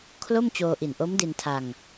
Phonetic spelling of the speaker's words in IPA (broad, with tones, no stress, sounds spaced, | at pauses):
kʰ l o˥˩ m t͡ɕ oː˧ ʔ i˨˩ n ʔ o˦˥ m d i˧ n tʰ a˧ ŋ